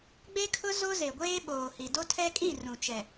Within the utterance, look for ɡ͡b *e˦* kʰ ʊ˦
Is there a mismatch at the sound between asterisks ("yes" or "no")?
no